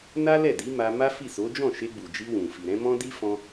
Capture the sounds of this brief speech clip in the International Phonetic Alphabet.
n a˦ l ɛ˦˨ d i˨˦ m a˧ m a˦ f i˦˨ s o˨˦ d͡ʒ ɔ̃˦˨ ʃ e˧ ɡ͡b u˨ d͡ʒ i˧ w ũ˨ f i˨ ɾ ɛ̃˨˦ m ɔ̃˦ d i˦ f ɔ̃˧

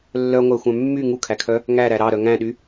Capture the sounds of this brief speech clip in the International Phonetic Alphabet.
lː œ ŋʷ æ xʷ œ̃ mː y ŋ u kʰ æ kʰ œ | ŋ æ ɾ æ ɾ ɑ ɾ œ ŋ æ̃ ɗ y

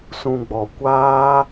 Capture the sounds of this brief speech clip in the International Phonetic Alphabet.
s ũ˨ ɡ͡b ɔ˨ kʷ aː˦

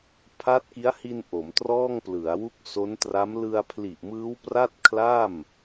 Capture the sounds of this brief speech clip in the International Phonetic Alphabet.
pʰ a˦˥ t̚ k i˦˥ a̯ h i˧ n ʔ o˩˦ m t r ɔː˥˩ ŋ p l ɯ˩˦ a̯ w u˥˩ k̚ s o˦˥ n t r a˦˥ m l ɯ˧ a̯ pʰ l i˨˩ ʔ m ɯː˦˥ w p r a˥˩ t̚ kʰ l a˥˩ m

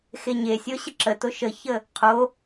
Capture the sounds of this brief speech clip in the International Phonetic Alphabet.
x e ɲ e sʲ o ɕ ə ǁ ə t o ʃ ə ç ə | qʰ o

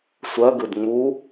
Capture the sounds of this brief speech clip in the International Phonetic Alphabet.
sʷ ɜ ɡ ɨ d ŋ͡m u

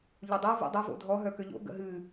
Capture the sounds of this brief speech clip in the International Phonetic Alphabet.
ʎ o dˤ u v ṵ dˤ ø v o̰ dʱ ɔ ɦ œ k ø ʎ o̰ ɡ ə̰ ɦ ʉ

